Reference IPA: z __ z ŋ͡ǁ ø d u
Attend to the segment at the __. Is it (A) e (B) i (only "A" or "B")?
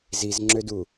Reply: B